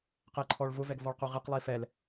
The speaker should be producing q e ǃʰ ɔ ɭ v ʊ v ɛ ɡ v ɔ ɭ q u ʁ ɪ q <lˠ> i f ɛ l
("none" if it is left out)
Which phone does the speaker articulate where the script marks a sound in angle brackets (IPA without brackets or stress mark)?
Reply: lˠ